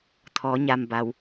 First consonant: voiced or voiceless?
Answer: voiceless